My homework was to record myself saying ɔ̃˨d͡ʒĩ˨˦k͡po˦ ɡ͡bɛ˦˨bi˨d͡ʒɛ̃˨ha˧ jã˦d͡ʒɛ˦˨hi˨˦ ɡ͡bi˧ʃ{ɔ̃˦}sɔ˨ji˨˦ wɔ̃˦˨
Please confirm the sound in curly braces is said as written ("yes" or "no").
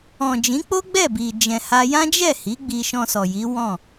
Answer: no